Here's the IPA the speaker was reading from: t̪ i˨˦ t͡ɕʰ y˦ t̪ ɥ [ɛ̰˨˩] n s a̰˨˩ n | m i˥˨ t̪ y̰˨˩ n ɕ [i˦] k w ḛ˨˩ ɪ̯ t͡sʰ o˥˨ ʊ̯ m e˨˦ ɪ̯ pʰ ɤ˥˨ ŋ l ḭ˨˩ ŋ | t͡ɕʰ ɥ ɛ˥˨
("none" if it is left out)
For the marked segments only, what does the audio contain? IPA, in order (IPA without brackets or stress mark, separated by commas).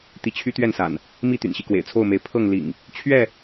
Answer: ɛ˥˨, i˦